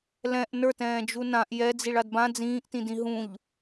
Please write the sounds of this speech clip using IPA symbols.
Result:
l ɛ̃ ʔ n ə˞ t ɛ̃ː d͡ʒ u n ã ʔ j ɛ d͡z i ɭ a d b ã d͡z ĩː ʔ t ĩ d ĩ ɦ ũ ʎ

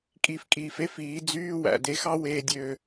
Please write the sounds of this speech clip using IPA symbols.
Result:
kʼ i˧˩ f kʼ iː˩ f e˥ f iː˩˧ d͡z yː˧˥˧ w æ̰˩ d e˧ x ɑ˥ w eː˧ dʲ øː˧

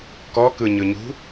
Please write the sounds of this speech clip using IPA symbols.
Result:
k ɔ k ɯ ɲ ɯ ɲ ṳ

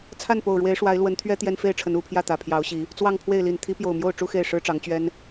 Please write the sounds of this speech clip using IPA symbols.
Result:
t͡sʰ a˥˨ n p o˨˩ ʊ̯ ɻ w e˨˦ ɪ̯ ʂ w a˨˦ ɪ̯ l w ə˨˦ n t̪ʰ ɥ ɛ˦ t̪ j ɛ˦ n f e˥˨ ɪ̯ ʈ͡ʂʰ ə˨˦ n u˨˩ pʰ j ä˥˨ t̪ ä˨˩ pʰ j ɑ˨˦ ʊ̯ ɕ i˨˦ | t͡s w ɑ˥˨ ŋ pʰ w e˥˨ ɪ̯ l i˨˩ n t̪ʰ i˨˦ p j o˨˩ ʊ̯ m j o˥˨ ʊ̯ ʈ͡ʂ u˦ x e˥˨ ɪ̯ ʂ ɻ̩˦ ʈ͡ʂ ɑ˨˦ ŋ t͡ɕ ɥ ɛ˦ n

